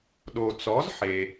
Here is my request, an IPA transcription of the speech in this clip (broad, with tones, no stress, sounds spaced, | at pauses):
ɗ o˩ t͡s ɔ˩˥ z ħ e˩